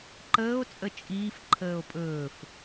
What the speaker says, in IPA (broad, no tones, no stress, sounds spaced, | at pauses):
ǃ əː o̯ t͡sʼ ə t͡ʃʼ iː f ǃʰ əː o̯ pʼ ɵː f